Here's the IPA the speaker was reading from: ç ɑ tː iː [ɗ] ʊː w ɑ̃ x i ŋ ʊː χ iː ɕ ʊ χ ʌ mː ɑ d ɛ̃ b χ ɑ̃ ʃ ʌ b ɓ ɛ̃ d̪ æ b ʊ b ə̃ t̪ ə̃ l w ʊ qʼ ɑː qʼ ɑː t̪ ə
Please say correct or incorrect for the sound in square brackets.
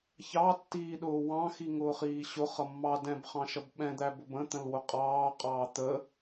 correct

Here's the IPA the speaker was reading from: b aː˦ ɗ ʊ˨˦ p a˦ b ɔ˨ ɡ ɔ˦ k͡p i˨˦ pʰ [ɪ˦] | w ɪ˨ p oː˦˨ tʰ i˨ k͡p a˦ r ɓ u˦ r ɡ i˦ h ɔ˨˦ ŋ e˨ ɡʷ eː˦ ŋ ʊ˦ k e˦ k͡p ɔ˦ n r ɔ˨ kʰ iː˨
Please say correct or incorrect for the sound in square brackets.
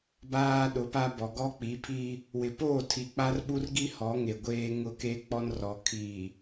incorrect: i˦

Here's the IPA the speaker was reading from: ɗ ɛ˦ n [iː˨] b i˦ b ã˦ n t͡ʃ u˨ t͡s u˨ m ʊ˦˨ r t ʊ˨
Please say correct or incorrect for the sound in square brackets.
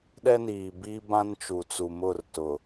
correct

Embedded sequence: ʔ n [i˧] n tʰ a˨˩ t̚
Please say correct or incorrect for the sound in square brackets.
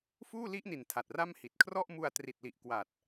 incorrect: i˨˩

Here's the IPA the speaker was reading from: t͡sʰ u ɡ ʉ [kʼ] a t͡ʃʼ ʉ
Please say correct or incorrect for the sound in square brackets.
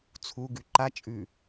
incorrect: ǃ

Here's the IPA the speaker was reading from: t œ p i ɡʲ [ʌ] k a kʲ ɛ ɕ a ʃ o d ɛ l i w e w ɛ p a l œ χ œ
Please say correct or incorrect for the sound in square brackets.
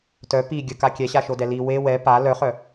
incorrect: ə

